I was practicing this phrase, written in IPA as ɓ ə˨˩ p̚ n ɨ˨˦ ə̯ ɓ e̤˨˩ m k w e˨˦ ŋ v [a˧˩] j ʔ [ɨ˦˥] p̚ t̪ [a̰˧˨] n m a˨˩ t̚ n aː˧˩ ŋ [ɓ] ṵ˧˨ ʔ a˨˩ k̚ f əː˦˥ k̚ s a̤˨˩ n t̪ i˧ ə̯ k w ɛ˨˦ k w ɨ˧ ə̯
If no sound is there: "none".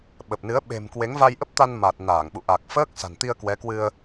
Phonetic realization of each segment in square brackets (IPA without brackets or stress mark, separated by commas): a˧, ə˦˥, a˧, ɓ